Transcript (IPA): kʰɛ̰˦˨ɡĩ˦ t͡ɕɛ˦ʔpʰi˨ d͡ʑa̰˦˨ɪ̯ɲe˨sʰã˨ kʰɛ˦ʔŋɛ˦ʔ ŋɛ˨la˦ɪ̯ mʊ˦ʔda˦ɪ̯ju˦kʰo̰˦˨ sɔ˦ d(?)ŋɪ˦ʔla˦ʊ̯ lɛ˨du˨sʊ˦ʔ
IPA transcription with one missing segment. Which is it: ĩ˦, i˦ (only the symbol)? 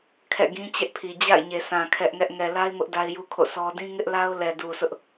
ĩ˦